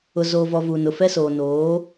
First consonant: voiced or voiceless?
voiced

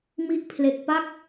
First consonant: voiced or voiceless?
voiced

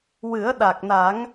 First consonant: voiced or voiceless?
voiced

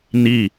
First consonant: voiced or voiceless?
voiced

